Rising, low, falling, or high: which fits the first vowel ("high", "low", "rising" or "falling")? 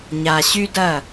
low